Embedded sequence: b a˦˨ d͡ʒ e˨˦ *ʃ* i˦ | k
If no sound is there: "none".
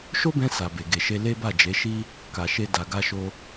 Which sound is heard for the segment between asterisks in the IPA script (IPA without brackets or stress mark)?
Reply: ʃ